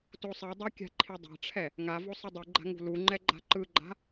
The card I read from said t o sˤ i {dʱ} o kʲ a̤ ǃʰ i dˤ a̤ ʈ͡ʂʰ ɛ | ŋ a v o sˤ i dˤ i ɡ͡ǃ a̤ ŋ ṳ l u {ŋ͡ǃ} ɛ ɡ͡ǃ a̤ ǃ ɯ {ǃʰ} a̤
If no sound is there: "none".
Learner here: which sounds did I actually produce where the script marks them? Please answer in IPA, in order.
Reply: dˤ, ŋ͡ǃ, ɡ͡ǃ

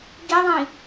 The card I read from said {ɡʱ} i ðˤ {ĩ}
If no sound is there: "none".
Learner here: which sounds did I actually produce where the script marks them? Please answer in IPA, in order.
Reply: ɡ, ĩ

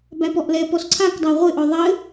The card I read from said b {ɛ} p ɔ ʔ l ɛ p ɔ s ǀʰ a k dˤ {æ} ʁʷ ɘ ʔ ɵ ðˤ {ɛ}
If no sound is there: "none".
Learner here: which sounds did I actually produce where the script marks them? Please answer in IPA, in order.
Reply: æ, æ, ɘ

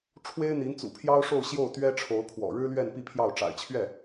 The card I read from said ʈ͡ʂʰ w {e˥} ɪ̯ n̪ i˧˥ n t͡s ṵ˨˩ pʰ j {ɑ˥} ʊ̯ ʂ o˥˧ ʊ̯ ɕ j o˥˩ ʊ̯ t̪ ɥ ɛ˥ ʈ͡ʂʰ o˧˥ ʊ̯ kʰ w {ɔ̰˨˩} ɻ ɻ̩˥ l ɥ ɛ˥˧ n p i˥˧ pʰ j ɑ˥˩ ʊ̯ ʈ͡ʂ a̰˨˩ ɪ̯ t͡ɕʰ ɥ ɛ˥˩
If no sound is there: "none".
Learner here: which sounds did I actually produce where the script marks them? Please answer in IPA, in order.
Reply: e˥, ɑ˥, ɔ̰˨˩

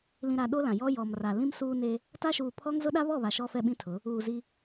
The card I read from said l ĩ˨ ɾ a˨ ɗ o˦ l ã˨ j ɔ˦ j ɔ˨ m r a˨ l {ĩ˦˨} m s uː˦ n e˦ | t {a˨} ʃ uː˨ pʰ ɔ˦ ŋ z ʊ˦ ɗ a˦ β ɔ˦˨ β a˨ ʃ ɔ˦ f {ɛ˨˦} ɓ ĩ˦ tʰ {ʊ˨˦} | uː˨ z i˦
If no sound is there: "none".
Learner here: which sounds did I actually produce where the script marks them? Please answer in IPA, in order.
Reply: ĩ˦, a˦, ɛ˦, ʊ˨˦

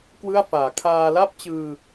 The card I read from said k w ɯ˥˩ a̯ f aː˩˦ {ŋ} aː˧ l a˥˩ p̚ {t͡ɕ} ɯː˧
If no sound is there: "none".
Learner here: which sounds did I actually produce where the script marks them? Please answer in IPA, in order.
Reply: kʰ, t͡ɕ

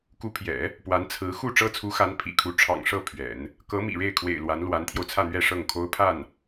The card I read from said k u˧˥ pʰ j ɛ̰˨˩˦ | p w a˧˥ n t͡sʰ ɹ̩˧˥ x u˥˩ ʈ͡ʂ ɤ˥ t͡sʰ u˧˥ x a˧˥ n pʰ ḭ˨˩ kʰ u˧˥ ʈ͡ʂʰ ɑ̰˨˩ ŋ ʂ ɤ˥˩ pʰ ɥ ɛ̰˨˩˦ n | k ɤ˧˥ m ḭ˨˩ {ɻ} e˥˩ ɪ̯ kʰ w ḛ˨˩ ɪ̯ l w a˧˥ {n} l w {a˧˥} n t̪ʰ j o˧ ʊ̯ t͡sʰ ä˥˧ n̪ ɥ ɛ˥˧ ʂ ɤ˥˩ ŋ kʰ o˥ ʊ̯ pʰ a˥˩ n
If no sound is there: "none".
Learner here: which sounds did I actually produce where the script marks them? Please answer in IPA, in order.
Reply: ɻ, n, a˧˥

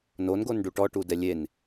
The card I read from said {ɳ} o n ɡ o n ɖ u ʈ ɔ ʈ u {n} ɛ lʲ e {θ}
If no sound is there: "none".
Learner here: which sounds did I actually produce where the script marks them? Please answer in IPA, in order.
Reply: n, d, n

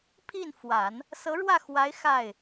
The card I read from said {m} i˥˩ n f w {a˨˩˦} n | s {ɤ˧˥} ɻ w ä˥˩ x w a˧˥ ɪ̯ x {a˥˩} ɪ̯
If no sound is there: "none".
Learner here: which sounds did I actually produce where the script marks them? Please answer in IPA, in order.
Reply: pʰ, a˨˩˦, ɤ˧˥, a˥˩

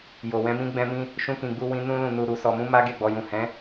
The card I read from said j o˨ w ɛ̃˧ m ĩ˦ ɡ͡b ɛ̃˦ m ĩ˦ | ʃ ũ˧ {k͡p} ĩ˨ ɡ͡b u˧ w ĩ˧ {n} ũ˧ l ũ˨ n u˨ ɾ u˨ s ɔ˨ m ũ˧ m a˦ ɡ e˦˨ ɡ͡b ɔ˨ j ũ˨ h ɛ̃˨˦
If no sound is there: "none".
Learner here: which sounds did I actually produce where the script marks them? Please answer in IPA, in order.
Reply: k, n

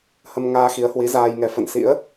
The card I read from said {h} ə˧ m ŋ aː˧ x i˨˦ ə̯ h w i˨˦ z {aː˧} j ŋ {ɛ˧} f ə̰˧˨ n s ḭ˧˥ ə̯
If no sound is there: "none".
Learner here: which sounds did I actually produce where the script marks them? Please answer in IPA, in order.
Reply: h, aː˧, ɛ˨˦

